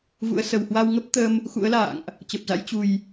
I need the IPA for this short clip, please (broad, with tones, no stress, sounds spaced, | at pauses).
v ṵ˧˥ ə̯ s ə˨˩ w h w a˧ w ŋ ə˦˥ p̚ t̪ ə˧ m | x ṵ˧˥ ə̯ l a̰ː˧˨ ŋ ʔ | t͡ɕ ə˨˩ p̚ z a̰˧˥ j t͡ɕ u˨˩ j